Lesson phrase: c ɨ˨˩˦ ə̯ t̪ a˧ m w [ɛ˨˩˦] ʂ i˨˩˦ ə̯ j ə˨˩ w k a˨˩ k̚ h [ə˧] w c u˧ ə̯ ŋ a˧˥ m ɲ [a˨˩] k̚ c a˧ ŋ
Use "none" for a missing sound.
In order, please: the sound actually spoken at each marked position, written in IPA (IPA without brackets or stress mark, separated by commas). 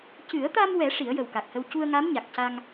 ɛ˨˩˦, ə˧, a˨˩